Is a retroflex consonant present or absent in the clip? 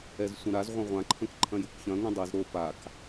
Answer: absent